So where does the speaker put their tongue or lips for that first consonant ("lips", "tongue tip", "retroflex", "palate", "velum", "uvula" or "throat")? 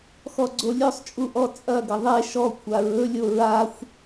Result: velum